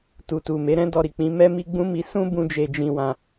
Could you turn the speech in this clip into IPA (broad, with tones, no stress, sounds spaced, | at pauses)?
t u˨ t u˨ m e˨˦ ɾ ɛ̃˦ d ɔ˧ ɾ i˨ k͡p ĩ˨˦ m ɛ˦ m i˦ ɡ͡b ũ˦ m i˧ s ũ˦ b ũ˧ d͡ʒ e˧ d͡ʒ ĩ˧ w ã˧